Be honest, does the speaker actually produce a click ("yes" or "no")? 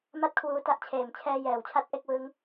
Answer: no